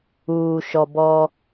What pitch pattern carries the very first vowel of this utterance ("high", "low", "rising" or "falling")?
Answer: low